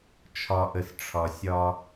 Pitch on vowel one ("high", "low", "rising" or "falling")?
low